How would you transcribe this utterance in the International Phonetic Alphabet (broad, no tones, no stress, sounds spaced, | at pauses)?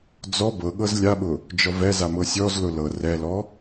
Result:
d͡z ɔ b ɤ ɠ ɤ z lʲ a ɓ ʊ | d͡ʒ ɔ v ɛ z a m ɤ sʲ ɔ z l ʊ l ɤ r ɛ l ɔ